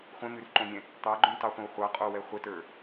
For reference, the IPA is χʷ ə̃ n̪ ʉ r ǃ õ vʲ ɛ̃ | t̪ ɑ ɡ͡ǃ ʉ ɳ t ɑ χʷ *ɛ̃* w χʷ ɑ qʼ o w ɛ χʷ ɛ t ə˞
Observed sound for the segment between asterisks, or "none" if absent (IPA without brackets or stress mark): ə̃